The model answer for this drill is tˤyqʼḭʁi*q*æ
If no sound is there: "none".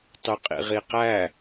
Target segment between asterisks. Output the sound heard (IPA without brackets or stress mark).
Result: q